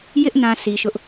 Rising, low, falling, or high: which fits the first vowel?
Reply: high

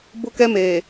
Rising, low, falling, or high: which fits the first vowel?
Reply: high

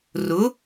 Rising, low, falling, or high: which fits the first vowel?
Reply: rising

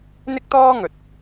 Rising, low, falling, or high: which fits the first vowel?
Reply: high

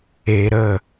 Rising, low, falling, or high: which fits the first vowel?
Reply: low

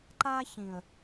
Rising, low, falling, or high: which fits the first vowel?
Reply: high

